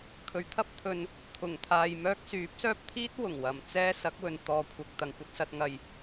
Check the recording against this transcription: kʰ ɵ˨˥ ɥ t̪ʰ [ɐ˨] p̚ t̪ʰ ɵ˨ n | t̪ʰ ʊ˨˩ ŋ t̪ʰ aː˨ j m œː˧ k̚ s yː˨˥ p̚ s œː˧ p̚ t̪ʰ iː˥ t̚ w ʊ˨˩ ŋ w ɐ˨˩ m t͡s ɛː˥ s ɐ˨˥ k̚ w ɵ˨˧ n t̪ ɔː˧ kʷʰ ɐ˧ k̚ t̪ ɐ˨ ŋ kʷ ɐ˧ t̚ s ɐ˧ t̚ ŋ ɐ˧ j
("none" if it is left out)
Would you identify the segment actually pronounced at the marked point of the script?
ɐ˧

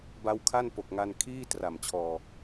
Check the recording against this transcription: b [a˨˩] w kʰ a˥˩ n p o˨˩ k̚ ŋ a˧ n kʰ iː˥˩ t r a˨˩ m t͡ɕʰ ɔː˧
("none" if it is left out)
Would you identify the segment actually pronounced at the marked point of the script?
a˦˥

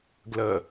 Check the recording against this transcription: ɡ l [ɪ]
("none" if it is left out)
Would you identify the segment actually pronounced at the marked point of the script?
ə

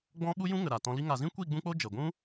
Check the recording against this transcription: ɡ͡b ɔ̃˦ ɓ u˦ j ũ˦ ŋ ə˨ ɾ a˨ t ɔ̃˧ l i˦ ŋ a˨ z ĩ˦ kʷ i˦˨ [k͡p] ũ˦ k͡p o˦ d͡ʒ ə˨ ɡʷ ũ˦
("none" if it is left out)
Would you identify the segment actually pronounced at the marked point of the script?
ɡ͡b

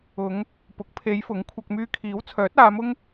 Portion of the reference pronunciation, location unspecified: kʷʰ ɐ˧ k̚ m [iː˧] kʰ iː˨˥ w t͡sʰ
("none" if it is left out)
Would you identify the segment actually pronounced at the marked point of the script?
yː˧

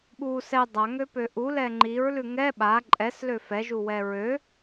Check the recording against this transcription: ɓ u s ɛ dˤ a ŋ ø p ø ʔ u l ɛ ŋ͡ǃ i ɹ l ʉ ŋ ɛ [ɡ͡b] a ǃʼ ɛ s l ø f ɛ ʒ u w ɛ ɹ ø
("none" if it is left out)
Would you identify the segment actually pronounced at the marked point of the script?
ɓ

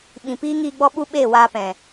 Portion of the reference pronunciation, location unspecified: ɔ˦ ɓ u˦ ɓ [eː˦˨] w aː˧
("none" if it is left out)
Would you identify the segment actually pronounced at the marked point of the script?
eː˦˨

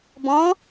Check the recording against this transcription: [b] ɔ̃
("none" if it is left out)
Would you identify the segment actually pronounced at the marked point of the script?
b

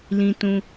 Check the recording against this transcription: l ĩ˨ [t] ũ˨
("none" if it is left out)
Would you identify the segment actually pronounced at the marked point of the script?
t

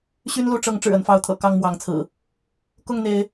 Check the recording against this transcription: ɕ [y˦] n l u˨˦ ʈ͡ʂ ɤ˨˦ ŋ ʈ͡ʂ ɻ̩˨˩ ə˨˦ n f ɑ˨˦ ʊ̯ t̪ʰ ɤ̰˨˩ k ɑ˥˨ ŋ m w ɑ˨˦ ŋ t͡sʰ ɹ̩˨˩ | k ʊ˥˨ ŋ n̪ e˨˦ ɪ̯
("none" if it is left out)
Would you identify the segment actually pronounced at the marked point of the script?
y˦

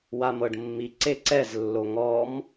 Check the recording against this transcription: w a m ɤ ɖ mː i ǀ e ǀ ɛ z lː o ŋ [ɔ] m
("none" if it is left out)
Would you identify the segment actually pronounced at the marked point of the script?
ɔ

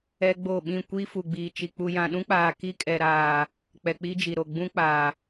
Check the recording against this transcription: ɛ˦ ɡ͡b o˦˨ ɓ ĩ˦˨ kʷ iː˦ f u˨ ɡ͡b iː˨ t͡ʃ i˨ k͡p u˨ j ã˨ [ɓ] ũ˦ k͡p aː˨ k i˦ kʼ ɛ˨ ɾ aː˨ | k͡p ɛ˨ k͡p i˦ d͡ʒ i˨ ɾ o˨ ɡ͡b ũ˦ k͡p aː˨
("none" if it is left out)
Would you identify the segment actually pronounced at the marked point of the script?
ɗ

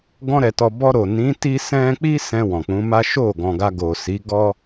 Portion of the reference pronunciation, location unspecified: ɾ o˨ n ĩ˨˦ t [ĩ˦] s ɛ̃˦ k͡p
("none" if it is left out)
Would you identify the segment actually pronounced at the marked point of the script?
i˦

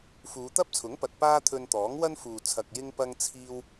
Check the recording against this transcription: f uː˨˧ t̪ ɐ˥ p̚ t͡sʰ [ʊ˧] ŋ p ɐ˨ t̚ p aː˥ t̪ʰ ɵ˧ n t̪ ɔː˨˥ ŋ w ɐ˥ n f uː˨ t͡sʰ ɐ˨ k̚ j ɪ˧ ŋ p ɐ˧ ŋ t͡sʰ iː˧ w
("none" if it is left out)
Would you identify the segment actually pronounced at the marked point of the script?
ʊ˨˥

